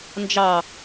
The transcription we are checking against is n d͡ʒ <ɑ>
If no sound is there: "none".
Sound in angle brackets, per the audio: ɑ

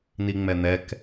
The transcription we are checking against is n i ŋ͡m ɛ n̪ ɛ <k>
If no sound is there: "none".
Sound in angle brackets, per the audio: k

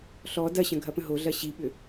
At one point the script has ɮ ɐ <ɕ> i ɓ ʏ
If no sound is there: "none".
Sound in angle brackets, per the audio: ɕ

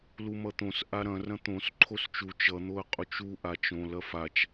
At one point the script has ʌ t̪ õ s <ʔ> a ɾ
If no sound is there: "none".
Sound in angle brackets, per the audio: ʔ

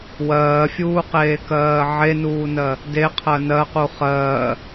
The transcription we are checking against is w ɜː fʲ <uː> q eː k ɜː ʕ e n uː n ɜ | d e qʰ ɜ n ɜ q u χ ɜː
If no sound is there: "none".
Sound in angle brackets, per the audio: uː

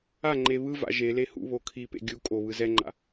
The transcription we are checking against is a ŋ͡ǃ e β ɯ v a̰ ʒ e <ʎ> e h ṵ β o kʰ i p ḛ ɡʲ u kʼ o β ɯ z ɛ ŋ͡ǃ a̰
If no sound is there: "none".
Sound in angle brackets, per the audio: l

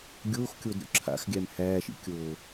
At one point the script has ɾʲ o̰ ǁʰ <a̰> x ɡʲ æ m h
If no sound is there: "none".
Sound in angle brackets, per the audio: a̰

